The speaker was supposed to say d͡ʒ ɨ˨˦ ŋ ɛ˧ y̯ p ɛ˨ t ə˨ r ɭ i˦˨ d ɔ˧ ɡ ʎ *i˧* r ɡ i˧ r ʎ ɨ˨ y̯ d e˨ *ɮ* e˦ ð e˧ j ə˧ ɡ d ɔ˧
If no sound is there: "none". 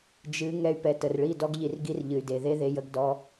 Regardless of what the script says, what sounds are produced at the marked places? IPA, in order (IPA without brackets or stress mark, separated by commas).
i˨, ð